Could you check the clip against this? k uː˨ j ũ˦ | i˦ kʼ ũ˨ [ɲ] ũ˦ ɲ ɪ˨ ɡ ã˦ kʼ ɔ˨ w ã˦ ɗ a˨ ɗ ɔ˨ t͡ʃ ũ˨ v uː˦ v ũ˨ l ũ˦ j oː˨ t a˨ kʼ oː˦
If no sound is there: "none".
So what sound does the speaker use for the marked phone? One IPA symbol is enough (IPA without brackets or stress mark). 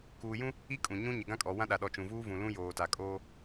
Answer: ɲ